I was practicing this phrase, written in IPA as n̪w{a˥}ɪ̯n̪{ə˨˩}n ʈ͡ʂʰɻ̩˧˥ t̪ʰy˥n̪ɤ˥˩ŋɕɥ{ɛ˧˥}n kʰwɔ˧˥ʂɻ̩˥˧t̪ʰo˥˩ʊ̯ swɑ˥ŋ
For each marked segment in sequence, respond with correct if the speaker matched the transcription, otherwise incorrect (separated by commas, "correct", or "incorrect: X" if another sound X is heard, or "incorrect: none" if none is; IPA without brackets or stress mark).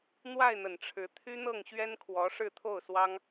incorrect: a˥˩, correct, incorrect: ɛ˥